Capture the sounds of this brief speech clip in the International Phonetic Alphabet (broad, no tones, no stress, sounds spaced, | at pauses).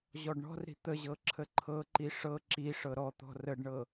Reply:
ʑ ɔ ɖ ɳ ɔ̤ r ɾ i̤ t̪ ə ʑ ɤ ǁʰ ə ǃʰ ɤ ǃ i ʂ ɤ ǁ i ʂ ɤ ɾ ɔ t̪ ɔ̤ r ə ɖ ɳ ɤ